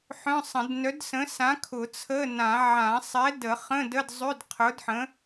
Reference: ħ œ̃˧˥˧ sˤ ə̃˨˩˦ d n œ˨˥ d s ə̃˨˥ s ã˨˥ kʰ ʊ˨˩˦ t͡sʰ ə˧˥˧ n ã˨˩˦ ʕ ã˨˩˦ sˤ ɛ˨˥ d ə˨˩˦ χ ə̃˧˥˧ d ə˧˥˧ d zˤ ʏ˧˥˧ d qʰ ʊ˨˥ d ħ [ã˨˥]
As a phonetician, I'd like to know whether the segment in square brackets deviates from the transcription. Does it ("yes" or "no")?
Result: yes